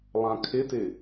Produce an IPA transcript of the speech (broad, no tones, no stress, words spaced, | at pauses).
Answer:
lˠãkʰɪtɪ